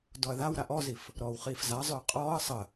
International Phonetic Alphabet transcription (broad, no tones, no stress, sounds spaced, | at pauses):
d ɔ ɐ̯ ð a w ɾ a ʔ ɔ z i f | ɾ ɔː w χ iː f z a zˤ ø ɐ̯ qʼ ɔː ɐ̯ sˤ ə